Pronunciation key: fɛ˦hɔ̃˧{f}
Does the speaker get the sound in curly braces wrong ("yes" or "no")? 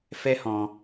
yes